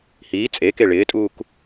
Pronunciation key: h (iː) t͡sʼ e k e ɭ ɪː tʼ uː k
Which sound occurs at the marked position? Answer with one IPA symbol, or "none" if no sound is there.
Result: iː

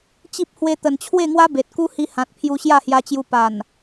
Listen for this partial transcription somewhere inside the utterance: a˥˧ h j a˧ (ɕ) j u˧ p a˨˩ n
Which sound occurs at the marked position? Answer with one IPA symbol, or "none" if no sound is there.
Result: t͡ɕ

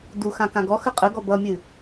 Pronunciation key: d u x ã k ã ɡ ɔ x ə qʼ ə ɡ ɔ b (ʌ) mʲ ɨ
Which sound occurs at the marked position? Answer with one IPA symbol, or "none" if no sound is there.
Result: ʌ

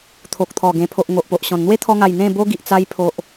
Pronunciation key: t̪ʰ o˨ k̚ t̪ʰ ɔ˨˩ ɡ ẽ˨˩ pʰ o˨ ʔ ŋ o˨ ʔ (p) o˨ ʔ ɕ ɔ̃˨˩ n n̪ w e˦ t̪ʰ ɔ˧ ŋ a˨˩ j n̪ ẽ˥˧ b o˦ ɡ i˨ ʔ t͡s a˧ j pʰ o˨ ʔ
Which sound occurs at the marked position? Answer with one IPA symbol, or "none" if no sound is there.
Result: p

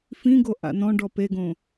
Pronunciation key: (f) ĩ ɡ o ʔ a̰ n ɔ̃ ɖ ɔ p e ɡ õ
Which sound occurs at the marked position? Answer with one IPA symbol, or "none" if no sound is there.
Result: f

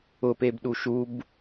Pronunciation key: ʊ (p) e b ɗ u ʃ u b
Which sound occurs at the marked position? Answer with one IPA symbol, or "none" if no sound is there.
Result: p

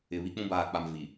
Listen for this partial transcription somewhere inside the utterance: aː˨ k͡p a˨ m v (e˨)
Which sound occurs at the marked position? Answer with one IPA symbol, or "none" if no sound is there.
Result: i˨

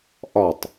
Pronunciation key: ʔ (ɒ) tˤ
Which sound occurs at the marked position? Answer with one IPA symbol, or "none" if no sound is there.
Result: ɒ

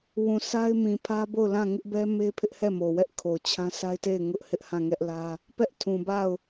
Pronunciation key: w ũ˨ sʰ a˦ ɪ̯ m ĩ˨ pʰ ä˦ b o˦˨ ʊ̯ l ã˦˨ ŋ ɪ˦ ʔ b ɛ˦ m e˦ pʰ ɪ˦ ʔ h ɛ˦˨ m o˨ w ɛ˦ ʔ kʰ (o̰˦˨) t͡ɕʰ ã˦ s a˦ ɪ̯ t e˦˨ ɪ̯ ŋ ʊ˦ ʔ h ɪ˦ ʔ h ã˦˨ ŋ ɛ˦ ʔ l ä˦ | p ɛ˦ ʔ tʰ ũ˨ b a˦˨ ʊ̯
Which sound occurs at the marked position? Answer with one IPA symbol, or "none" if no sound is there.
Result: o˨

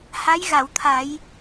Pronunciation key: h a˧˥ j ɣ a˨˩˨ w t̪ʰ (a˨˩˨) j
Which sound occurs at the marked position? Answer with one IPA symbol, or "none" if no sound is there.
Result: a˨˩˦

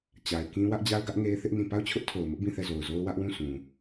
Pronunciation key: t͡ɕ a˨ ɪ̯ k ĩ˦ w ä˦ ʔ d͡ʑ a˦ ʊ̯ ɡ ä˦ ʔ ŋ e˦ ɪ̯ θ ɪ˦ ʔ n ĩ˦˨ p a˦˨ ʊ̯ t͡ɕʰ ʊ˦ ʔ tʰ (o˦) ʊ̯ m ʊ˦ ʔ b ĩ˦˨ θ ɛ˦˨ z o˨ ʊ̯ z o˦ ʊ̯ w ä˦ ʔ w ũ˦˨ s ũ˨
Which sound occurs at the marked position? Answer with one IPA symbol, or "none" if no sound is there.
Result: o˨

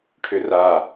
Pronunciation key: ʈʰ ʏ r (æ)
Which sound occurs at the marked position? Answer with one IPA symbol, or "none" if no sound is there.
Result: a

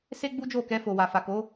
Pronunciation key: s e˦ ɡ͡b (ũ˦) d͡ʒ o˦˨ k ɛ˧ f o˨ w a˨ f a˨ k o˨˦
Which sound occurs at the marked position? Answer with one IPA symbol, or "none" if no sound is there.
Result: u˦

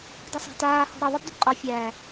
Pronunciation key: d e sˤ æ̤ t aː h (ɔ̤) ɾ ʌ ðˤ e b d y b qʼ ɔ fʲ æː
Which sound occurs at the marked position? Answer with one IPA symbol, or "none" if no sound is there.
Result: ɔ̤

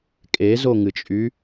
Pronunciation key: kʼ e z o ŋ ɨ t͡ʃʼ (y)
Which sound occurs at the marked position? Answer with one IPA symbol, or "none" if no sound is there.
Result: y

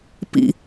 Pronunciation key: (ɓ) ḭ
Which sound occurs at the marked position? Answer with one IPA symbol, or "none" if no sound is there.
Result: p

